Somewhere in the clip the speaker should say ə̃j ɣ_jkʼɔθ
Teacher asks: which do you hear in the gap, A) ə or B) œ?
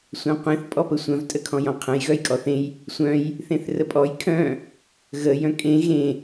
B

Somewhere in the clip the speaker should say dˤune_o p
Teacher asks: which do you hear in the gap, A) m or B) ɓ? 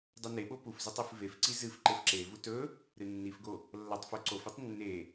B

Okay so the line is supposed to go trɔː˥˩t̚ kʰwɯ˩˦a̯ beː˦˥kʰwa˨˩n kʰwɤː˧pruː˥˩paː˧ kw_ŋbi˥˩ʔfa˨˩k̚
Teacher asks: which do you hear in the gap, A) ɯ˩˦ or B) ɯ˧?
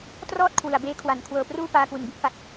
A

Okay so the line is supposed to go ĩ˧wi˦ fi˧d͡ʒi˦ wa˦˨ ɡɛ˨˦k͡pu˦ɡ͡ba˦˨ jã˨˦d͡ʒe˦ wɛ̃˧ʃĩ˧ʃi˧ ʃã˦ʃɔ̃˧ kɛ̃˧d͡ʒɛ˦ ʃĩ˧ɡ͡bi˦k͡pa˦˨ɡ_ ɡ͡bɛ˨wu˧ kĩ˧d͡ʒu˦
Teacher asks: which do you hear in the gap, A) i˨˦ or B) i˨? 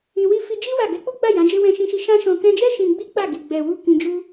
B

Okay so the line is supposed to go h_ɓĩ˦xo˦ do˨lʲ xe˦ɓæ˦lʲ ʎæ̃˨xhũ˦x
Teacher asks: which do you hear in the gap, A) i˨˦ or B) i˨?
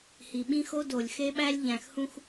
B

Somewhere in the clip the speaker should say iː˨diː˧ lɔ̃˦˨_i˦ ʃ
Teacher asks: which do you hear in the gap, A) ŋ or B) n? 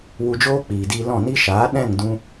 B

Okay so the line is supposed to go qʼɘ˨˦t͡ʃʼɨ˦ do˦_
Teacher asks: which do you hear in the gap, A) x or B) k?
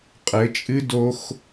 A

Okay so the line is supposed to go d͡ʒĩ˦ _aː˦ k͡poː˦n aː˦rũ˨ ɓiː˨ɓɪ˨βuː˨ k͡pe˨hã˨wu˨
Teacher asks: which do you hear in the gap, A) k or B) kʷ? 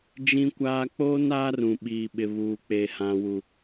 B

